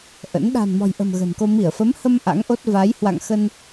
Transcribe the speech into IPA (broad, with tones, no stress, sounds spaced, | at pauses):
ʔ ə̰˧˥ n ɗ a̤˨˩ n m ɔ̤˨˩ j ʔ ə̤˨˩ m ɣ ə̤˨˩ n k o˧ m i˧˩ ə̯ f ə˨˦ m h ə˧ m ʔ a̰˧˥ ŋ ʔ o˦˥ t̚ v a˨˦ j h w a̰˧˨ ŋ x ə˧ n